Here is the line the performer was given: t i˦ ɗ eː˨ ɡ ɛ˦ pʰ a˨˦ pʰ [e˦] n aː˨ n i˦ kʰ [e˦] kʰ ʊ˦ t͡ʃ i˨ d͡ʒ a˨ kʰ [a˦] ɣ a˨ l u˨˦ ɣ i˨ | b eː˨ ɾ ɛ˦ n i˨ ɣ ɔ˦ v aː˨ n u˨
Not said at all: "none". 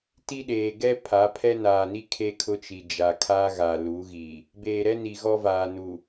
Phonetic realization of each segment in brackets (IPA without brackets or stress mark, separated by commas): ɛ˦, e˦, a˦